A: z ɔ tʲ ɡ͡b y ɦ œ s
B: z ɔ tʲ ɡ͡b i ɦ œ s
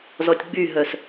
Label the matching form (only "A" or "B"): A